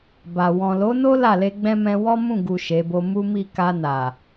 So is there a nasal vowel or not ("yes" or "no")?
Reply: yes